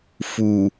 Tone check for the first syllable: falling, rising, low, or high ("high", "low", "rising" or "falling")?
low